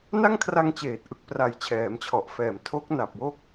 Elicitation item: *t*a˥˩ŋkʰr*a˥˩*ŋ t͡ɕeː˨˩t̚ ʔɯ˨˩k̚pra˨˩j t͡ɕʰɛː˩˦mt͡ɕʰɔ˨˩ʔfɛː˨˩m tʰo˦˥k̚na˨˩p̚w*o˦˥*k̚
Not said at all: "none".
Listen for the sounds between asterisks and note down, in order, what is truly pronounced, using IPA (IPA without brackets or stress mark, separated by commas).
n, a˧, o˦˥